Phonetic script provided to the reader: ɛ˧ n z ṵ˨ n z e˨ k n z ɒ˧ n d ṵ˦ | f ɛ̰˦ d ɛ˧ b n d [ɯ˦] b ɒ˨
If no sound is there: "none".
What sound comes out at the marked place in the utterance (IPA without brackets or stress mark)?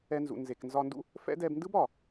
ɯ˦